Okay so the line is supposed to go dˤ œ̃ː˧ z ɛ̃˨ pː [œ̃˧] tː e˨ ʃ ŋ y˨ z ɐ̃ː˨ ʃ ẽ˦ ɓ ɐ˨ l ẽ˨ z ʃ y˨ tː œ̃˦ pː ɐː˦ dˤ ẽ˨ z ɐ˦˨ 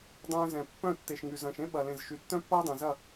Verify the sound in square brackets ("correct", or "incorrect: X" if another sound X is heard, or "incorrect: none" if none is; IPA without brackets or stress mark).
incorrect: œ̃˦˨